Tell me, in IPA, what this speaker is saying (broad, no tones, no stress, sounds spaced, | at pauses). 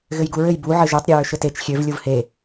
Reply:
ɣ ɘ j ɡ u ɹ ɘ j b u ʕ ɘ ʒ ø tˤ ɾʲ ɘ ɹ ʏ ʃ ɘ t e t͡ʃ xʲ ø v lʲ u v h e